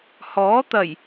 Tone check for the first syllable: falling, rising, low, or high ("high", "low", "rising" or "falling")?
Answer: rising